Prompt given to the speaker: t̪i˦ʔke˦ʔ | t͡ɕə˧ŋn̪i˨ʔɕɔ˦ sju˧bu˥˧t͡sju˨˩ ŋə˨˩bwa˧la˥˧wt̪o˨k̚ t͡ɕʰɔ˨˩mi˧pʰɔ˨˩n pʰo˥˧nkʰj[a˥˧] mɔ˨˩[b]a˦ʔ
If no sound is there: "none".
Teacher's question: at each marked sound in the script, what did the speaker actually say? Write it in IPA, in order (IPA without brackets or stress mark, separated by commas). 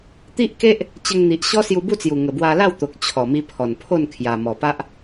a˨˩, p